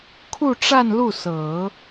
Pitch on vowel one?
falling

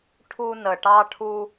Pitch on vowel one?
high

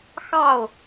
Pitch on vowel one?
falling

